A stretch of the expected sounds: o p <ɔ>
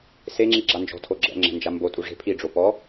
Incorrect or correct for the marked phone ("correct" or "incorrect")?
correct